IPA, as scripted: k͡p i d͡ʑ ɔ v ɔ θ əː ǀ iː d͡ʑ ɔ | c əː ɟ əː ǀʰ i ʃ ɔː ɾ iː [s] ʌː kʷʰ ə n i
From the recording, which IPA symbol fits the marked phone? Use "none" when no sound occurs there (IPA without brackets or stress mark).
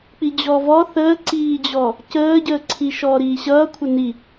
ɕ